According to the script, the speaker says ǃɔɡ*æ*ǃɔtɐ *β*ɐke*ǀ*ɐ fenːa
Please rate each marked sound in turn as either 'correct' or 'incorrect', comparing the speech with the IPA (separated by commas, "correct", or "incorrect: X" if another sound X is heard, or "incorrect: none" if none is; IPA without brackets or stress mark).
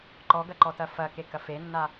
incorrect: ɐ, incorrect: f, incorrect: k